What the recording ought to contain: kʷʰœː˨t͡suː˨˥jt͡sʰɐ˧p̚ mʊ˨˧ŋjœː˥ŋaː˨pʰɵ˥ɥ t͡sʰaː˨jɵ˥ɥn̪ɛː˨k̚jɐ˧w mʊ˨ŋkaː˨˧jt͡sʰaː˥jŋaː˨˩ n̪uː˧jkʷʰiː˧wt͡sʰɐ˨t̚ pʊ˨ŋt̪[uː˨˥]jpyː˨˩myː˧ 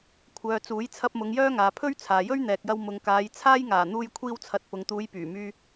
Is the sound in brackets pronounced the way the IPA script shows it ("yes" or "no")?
no